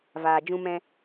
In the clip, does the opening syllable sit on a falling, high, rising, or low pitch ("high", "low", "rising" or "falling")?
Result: low